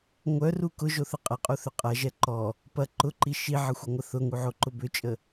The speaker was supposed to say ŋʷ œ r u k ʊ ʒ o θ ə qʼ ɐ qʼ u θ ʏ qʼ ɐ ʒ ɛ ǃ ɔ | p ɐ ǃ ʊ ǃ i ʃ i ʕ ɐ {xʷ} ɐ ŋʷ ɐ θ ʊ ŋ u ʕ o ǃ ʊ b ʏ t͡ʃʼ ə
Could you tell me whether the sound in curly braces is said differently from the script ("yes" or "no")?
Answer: no